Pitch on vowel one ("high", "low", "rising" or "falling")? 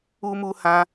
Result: high